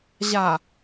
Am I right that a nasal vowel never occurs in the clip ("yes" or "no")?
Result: yes